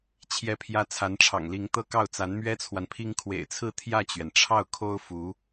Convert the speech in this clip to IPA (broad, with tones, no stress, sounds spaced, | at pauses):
t͡ɕʰ j ɛ˧˥ pʰ j ä˧˥ t͡sʰ a˧˥ n ʈ͡ʂʰ ɑ̰˨˩ ŋ l i˧˥ ŋ t̪ ɤ˥ k ɑ˥˩ ʊ̯ t͡s a˧˥ n m ɥ ɛ˥ t͡sʰ w a˨ n pʰ i˥ ŋ kʰ w ḛ˨˩ ɪ̯ t͡sʰ ɹ̩˥˧ t̪ʰ j ä˥˩ t͡ɕ ɥ ɛ˩ n ʈ͡ʂʰ ɑ˥˩ ʊ̯ kʰ o˥ ʊ̯ f u˧˥